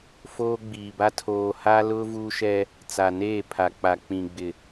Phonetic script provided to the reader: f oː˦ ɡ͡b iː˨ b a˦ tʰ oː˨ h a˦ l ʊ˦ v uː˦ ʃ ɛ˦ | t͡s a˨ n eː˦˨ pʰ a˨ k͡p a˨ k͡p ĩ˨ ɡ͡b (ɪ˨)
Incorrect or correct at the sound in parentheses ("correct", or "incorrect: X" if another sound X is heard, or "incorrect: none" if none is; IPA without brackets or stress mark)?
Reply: correct